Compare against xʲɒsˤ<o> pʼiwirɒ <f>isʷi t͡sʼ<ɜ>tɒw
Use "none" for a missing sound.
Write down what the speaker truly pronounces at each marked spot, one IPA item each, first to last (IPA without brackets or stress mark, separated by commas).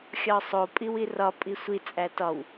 o, pʼ, æ